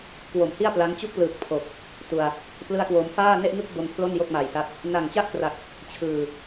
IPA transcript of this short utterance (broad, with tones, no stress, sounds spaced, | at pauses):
k w o˨˩ m h i˥˩ a̯ p l a˦˥ ŋ t͡ɕ u˥˩ k̚ p l ɯː˨˩ k̚ pʰ o˨˩ k̚ | t u˨˩ a̯ | p l ɯ˥˩ a̯ k w o˧ m f aː˥˩ n e˥˩ ʔ ŋ ɯ˥˩ k̚ b o˧ n pʰ l o˥˩ n j o˥˩ k̚ m a˨˩ j s a˦˥ t̚ | n a˨˩ ŋ t͡ɕ a˥˩ ʔ k r a˨˩ k̚ | t͡ɕʰ ɯː˨˩